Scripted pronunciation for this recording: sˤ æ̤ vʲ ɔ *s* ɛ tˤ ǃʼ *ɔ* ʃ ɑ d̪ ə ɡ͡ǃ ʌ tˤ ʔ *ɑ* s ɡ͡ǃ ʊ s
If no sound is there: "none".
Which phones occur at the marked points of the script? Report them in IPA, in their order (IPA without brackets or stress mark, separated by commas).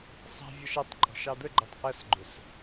ʃ, ɔ̤, ʌ